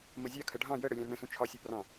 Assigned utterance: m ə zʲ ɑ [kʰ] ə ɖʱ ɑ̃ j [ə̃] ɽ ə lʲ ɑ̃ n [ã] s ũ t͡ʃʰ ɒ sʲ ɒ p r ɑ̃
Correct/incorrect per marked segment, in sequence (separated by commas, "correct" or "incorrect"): correct, incorrect, incorrect